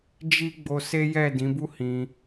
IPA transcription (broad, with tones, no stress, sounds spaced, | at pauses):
d͡ʒ i˦ ɡ͡b o˧ s e˦ j ɛ˦˨ d ĩ˨˦ b u˦ h ĩ˧